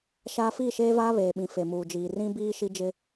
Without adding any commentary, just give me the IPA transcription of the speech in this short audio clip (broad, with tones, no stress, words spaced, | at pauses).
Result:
ʃaː˦ fiː˦˨ʃeː˦vaː˦ βeː˨ɓĩ˨ fe˨muː˨d͡ʒiː˨ rĩ˦biː˦ ʃi˦d͡ʒɪ˦